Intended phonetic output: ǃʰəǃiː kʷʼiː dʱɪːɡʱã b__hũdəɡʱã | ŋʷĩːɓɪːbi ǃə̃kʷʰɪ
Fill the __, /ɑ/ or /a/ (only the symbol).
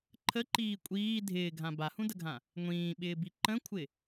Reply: a